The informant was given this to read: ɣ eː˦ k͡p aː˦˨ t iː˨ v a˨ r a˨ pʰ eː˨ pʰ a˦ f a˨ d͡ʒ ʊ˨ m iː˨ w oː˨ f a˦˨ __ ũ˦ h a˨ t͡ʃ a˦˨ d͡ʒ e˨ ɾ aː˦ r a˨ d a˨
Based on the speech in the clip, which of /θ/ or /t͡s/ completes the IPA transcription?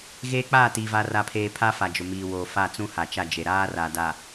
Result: t͡s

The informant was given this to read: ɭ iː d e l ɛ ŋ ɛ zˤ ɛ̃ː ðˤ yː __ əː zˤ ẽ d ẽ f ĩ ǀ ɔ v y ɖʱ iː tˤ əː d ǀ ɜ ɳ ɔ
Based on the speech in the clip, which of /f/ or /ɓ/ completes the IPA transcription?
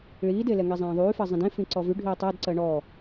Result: f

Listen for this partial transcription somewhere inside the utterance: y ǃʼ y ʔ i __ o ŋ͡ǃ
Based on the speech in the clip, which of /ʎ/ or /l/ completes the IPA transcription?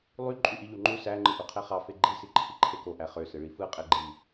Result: ʎ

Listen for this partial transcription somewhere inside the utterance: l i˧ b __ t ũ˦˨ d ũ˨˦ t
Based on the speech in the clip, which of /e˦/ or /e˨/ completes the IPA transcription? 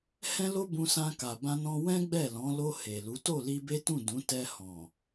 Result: e˦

